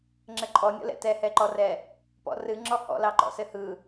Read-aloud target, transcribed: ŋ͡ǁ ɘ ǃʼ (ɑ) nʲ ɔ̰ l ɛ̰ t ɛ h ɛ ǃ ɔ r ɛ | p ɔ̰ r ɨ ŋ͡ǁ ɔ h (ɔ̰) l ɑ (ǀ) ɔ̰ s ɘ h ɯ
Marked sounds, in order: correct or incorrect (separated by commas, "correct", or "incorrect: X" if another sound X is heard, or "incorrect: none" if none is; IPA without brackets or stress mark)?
incorrect: ɔ, correct, incorrect: ǃ